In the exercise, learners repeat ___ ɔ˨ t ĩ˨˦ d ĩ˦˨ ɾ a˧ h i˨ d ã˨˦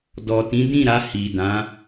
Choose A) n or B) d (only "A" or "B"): B